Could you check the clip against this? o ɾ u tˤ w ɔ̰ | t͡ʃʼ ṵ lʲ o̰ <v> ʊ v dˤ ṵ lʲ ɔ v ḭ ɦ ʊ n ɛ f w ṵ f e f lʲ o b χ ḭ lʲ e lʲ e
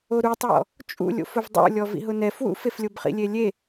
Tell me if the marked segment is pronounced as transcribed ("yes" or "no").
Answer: no